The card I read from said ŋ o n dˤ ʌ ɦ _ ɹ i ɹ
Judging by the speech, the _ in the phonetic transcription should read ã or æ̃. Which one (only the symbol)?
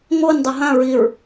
ã